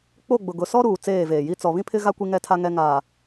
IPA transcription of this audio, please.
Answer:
k͡p o˦˨ ɡ͡b ʊ˨ ɡ ʊ˨ s ɔ˦ ɾ uː˨ t͡s eː˦˨ v eː˨ j i˦ t͡s ɔ˨ β ĩ˦ pʰ ɪ˦ ɣ a˦ kʷ i˦ ŋ ɛ˦˨ tʰ a˦ ŋ ɛ˦ ŋ aː˨

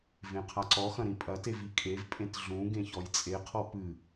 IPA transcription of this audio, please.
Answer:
v ẽ qʰ a ǀ ɔ x ɐ̃ ɾ ĩ pʼ ɐ t e v i kʼ e v pʼ ẽ t ɮ ũ ɡ ẽ ç ɔ j t͡sʼ e qʰ ɔ p ɨ

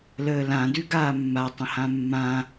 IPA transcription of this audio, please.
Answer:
l əː l ã d ʉ ɡ aː mː a tˤ ə̃ h ã mː ã

